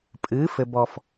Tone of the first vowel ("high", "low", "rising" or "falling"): rising